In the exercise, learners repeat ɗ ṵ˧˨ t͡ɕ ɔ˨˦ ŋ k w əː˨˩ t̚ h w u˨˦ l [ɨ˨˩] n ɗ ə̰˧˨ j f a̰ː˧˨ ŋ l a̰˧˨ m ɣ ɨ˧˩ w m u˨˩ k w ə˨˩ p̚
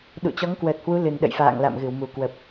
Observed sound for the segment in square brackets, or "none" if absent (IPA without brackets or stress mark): ɨ˨˩